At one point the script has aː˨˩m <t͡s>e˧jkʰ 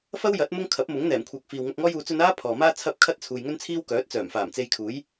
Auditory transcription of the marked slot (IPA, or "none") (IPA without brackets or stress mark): t͡s